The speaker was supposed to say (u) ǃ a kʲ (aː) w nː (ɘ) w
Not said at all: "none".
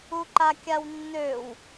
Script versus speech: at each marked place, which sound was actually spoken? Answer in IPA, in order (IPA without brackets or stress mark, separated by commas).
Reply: u, a, ø